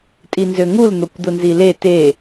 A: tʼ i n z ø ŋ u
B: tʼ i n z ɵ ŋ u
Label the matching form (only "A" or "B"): A